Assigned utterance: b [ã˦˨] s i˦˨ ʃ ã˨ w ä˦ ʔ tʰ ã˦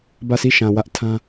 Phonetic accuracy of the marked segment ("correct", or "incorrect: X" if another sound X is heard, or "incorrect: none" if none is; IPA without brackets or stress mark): incorrect: ä˦˨